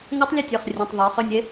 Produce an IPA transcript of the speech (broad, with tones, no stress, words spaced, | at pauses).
ŋa˦˥tˤlʲɛ˦˨tʲə˞˩˧˩χ rʲɛ̃˩˧˩tˤ ðˤə˞˩˧ χø˦˨nʲe˦˥